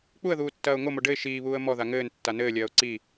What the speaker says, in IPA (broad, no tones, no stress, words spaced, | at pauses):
k͡puə̯ðuːtːɐːʊ̯ ŋomo ɖɘɪ̯ ʃiːβuːə̯ mɔða ŋɘːntːa nɘːlʲɐːʊ̯ ǀi